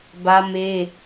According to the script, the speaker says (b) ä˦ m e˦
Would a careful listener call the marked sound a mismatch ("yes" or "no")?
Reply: no